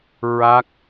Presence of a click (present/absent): absent